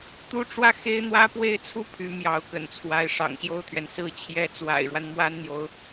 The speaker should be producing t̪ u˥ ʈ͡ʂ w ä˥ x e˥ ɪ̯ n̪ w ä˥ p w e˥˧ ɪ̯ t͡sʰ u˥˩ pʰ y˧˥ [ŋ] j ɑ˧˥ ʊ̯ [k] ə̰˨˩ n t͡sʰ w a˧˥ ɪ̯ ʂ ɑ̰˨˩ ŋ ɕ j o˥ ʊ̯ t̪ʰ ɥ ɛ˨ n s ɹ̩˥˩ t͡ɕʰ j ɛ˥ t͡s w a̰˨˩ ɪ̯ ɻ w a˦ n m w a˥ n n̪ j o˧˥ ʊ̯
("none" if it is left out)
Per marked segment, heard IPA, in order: m, k

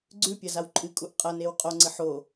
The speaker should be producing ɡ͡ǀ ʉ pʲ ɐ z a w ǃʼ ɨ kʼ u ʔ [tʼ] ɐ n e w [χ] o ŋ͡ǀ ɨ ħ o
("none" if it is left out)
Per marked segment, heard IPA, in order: qʼ, qʼ

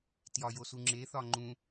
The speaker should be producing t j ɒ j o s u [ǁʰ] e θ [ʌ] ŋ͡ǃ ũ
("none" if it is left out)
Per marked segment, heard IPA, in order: ŋ͡ǁ, ɒ

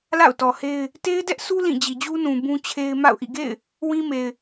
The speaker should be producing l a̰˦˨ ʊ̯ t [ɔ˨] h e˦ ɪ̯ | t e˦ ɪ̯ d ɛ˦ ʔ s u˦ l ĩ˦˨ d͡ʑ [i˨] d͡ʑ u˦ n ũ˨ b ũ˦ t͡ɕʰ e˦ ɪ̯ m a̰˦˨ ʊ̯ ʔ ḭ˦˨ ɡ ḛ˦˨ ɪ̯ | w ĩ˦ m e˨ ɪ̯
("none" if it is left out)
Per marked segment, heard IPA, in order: ɔ˨, i˨

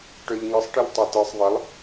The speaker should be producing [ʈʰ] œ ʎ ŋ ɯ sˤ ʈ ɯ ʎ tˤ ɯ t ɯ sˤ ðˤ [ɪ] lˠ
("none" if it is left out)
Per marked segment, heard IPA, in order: ʈ, ɪ

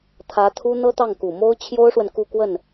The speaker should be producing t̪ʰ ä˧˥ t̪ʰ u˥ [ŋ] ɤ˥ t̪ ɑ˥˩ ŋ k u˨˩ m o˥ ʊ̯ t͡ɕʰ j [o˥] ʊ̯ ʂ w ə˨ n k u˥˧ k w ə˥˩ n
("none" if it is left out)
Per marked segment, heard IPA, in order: n̪, o˥

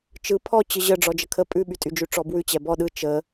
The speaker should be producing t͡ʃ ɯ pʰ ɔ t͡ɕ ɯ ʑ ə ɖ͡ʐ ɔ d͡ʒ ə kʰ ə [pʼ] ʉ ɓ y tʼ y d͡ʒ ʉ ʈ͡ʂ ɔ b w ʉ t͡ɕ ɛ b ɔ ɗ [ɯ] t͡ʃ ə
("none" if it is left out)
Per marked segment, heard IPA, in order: pʼ, ɯ

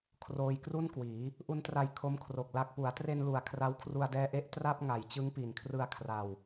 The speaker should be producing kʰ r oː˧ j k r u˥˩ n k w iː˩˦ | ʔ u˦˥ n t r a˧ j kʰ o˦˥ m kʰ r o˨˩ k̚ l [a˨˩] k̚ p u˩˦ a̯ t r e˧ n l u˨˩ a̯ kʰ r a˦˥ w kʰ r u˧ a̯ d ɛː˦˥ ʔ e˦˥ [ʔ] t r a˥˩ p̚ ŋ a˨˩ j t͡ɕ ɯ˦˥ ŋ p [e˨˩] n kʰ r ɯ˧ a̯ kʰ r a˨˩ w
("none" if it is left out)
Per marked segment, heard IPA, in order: a˨˩, ʔ, i˨˩

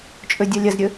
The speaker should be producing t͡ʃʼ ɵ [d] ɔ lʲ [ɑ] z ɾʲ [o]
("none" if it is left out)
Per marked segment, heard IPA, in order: dʲ, ɐ, ɵ

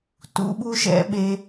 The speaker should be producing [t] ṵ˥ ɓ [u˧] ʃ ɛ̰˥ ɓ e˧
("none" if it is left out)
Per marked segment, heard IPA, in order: t, u˥

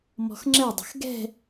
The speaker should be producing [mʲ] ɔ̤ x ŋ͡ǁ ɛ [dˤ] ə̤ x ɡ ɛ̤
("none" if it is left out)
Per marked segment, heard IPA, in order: m, dˤ

